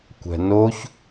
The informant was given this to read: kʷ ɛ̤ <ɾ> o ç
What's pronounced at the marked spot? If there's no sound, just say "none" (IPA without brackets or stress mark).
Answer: n